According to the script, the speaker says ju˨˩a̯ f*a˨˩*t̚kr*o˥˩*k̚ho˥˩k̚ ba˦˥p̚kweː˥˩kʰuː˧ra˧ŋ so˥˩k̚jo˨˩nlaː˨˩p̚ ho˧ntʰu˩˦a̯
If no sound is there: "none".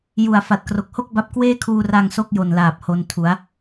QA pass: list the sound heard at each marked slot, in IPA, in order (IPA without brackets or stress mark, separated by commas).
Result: a˨˩, o˨˩